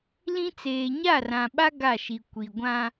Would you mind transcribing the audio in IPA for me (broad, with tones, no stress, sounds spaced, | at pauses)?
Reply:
l ĩ˦ t͡s eː˨ ɲ a˦˨ r ã˨ ɓ a˦ ɡ a˦˨ ʃ i˨ kʷ i˨ ɡʷ ã˦